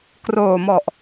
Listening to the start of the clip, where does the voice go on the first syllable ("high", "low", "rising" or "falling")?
low